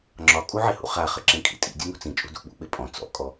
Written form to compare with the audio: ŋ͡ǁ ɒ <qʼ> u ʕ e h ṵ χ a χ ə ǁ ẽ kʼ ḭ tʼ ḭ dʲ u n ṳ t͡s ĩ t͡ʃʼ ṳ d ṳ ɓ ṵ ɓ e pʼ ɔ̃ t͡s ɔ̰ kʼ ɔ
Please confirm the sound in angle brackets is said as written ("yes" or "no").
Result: no